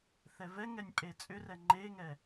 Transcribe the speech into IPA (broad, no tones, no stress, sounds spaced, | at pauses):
θ ɛ v ɛ ŋ ɛ nʲ pʼ e t͡sʼ ʏ r ɛ ŋ͡ǃ e ŋ ɛ